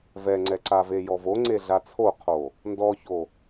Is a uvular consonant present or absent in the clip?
present